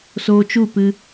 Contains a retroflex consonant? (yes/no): no